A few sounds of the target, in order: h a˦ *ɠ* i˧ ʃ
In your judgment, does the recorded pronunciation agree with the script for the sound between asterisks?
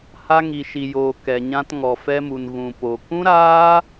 no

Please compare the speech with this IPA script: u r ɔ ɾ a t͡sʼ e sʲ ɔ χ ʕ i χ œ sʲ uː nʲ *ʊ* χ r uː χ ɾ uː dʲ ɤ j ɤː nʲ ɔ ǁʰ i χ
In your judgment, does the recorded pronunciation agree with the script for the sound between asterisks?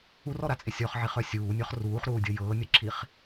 no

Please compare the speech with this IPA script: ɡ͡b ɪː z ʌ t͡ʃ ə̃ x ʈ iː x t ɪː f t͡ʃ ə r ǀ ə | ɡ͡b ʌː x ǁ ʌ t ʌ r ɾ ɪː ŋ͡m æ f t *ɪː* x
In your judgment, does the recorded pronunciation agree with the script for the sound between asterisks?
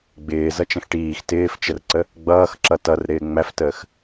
no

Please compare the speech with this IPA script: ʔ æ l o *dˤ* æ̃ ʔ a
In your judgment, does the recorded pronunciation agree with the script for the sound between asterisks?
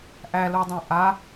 yes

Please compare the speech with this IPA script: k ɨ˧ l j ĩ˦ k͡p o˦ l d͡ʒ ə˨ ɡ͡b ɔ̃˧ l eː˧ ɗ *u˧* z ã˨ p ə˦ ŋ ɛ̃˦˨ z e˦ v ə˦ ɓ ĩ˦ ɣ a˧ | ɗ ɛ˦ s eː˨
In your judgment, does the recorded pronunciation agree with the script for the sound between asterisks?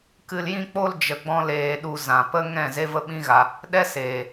yes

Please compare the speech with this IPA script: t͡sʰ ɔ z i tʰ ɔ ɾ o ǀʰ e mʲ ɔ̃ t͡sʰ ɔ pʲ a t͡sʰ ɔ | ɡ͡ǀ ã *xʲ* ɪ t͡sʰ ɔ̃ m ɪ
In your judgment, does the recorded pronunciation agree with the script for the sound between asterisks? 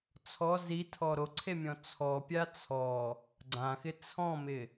no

